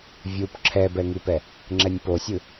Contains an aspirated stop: yes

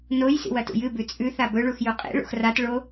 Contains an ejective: yes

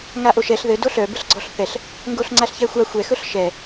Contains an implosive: no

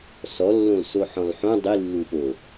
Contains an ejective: no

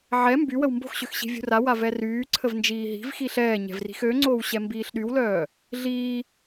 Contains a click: yes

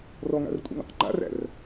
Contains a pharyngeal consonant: no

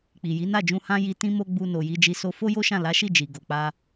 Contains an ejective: no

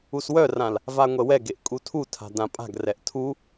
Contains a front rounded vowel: yes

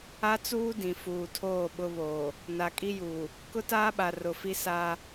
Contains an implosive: yes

